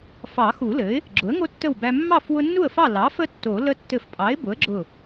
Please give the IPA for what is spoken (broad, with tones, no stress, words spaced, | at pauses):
fɑ˨˩˦xu˨˩˦lɘ˩˥ɪ̯ | ɡ͡ǁʊ˩˥ə̯ŋo˦ tːə˥˨wbæ˦ mːɑ˥˨f wʊ˦nːu˥˨ə̯fɑ˥˨ lɑ˩˥fə˦ tːo˨˩˦lə˦ tːɘ˧˩fpʼɑ˩˥ɪ̯ bʊ˩˥ə̯ɡ͡ǁʊ˧˩